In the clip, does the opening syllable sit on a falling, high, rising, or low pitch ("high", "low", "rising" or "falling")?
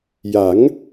rising